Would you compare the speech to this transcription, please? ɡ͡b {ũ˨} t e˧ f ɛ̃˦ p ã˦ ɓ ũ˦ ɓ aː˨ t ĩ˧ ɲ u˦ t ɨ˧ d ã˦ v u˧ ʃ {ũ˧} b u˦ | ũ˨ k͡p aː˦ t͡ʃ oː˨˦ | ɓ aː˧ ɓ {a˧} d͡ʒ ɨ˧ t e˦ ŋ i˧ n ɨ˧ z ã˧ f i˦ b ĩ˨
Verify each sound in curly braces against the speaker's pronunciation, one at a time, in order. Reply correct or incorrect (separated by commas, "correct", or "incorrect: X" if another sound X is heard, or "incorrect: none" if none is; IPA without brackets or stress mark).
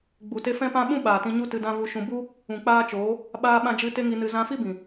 incorrect: u˨, correct, incorrect: ã˧